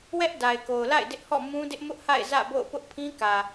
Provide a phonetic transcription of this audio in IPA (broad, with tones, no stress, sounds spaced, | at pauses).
w ɛ˦ ʔ d a˨ ɪ̯ k o˨ ʊ̯ l a̰˦˨ ɪ̯ d ɪ˦ ʔ h ɔ̰˦˨ m ũ˦ d ɪ˦ ʔ m ʊ˦ ʔ h a̰˦˨ ɪ̯ z ä̰˦˨ b o̰˦˨ ʊ̯ p ʊ˦ ʔ pʰ ĩ˦ k ä˨